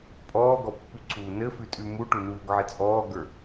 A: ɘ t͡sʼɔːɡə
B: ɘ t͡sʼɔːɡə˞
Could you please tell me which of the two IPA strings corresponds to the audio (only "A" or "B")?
B